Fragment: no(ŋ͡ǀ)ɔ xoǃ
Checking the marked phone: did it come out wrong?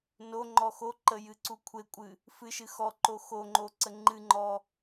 yes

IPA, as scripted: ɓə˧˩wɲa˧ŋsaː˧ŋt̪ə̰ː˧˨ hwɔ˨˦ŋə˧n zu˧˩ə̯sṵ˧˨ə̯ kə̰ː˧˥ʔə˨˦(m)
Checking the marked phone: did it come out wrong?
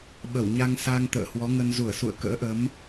no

